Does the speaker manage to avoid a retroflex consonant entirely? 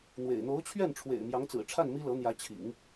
no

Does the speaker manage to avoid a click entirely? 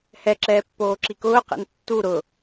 no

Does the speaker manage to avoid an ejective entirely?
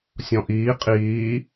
no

